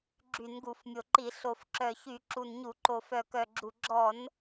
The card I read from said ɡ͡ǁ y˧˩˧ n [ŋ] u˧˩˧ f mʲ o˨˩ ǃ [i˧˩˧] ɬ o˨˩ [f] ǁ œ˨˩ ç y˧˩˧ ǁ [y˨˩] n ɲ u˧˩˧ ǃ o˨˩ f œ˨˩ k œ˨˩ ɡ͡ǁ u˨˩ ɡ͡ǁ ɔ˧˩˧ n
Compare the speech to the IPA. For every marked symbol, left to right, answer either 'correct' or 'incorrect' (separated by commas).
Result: incorrect, correct, correct, incorrect